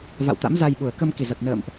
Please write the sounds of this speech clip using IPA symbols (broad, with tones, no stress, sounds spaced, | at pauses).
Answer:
v a̰˧˨ w t̪ a̰˧˥ m z a˧ j ɓ u˨˩ ə̯ k ə˧ m k i˨˩ z a˨˩ t̚ n ə̰ː˧˨ m ʔ